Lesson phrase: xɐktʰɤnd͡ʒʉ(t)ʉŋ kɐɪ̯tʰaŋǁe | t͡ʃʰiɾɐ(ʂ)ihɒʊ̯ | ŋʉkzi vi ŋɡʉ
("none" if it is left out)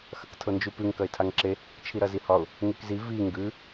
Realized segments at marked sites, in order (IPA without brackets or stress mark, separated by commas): p, z